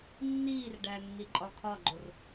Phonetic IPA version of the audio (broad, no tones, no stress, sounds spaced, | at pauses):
nː iː r ɖ æ nː i ǃʼ ɒ kʰ ɒ ɡ͡ǃ o r